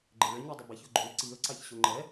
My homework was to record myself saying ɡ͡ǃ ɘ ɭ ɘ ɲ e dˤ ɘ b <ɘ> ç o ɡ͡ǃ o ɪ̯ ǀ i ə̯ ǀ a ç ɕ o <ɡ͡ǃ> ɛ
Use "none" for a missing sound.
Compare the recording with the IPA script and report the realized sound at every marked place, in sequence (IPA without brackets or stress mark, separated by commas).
e, ŋ͡ǃ